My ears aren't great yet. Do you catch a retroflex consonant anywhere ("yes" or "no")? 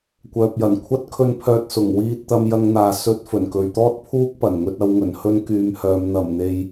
no